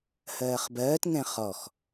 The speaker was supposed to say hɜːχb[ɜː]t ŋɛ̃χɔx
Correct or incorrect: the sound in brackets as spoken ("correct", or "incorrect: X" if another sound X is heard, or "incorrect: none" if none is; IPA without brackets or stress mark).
correct